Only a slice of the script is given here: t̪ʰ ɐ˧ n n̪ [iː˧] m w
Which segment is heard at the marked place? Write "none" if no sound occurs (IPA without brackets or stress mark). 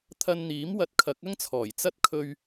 iː˨˥